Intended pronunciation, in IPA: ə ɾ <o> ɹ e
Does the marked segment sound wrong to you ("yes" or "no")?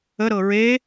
yes